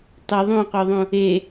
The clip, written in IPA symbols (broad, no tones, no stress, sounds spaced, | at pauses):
tˤ y ðˤ ũ qʷ œ ðˤ ũ | e